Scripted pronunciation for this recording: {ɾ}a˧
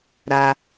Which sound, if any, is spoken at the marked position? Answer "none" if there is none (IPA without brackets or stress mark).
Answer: ɾ